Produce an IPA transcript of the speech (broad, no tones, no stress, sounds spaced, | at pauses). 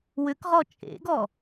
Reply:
w ʏ k ʁ ɔ t͡ʃʼ ḛ ɡ ɔ